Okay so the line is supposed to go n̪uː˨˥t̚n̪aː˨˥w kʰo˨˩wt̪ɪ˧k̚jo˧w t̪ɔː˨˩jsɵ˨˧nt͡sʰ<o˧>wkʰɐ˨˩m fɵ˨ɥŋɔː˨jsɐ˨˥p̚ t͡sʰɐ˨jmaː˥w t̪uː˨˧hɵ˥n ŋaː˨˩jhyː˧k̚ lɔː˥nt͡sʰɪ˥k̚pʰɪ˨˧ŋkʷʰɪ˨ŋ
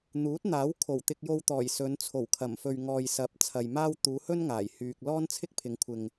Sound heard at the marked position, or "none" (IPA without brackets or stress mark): o˨˩